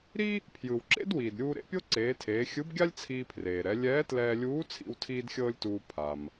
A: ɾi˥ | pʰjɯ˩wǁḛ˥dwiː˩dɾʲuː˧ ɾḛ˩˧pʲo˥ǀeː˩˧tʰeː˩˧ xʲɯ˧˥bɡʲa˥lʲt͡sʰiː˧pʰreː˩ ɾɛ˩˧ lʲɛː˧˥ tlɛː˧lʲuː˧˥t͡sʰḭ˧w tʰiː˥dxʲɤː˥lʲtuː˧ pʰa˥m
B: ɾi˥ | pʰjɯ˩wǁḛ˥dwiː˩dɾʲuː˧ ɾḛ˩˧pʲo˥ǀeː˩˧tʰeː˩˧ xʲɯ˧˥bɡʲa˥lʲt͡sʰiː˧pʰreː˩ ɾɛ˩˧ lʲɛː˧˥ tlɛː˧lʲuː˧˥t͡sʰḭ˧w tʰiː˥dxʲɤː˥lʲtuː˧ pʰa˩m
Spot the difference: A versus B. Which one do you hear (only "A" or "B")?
B